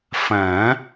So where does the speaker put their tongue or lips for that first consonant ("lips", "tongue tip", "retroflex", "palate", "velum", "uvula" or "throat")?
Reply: lips